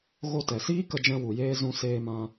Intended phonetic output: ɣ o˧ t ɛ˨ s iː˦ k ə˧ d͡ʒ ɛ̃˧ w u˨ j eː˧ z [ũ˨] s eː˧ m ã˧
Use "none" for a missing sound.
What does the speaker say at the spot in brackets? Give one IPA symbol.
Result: ũ˧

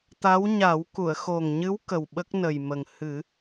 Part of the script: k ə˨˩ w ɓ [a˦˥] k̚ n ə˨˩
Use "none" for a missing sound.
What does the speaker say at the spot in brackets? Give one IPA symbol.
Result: ə˦˥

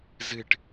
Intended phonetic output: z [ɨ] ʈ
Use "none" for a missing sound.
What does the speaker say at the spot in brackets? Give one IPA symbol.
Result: ɨ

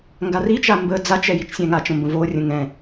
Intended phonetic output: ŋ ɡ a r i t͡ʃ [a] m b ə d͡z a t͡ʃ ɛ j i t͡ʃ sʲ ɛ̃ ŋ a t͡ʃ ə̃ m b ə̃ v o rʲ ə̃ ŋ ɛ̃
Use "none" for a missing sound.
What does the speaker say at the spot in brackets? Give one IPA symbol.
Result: a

